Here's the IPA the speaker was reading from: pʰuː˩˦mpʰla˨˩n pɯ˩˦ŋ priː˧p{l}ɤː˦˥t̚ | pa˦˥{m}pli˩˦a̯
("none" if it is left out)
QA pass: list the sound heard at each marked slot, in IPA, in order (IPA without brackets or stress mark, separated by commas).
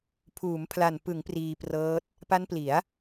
r, n